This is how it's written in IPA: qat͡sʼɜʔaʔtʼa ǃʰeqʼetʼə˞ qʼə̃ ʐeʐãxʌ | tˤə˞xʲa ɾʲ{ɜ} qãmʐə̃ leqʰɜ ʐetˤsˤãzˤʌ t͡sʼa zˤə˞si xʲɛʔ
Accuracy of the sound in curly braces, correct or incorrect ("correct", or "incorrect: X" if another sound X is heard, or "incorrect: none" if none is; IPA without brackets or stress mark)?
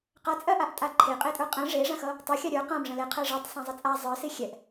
incorrect: ə˞